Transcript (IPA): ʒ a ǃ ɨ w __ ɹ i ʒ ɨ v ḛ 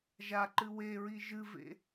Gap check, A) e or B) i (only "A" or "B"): A